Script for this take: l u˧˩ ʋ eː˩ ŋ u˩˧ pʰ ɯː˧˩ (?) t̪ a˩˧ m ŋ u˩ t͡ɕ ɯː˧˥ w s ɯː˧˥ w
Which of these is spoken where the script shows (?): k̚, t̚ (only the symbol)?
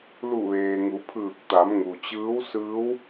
k̚